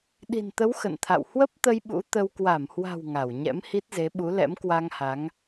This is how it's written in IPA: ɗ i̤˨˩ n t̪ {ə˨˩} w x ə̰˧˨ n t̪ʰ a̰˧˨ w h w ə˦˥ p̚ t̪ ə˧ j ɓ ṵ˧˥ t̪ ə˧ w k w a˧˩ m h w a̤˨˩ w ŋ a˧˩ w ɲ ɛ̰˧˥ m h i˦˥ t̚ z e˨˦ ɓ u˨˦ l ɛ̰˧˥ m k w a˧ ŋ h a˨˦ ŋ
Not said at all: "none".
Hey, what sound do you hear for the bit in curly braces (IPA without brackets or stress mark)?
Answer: ə˨˦